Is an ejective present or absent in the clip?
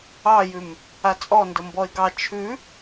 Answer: present